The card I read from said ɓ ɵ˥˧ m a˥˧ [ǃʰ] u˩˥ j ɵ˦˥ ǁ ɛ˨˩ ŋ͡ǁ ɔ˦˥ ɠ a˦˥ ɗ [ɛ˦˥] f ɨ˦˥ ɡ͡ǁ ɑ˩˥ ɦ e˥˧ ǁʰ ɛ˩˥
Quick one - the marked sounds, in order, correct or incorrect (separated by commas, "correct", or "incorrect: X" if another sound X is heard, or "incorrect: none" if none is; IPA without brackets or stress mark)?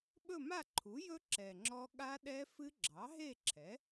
correct, correct